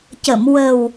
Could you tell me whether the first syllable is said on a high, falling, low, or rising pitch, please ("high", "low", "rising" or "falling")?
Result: low